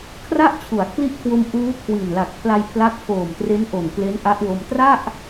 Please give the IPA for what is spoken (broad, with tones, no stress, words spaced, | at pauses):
kʰra˥˩ʔt͡ɕʰu˩˦a̯kʰli˦˥ʔkʰwo˧m ʔuː˦˥kʰwi˨˩nla˨˩k̚pʰla˧j pʰla˦˥k̚pʰoː˨˩mtre˦˥nʔo˨˩n kle˦˥nʔa˦˥ʔwo˧m tra˥˩ʔ